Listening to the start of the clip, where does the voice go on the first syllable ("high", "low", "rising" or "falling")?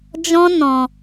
high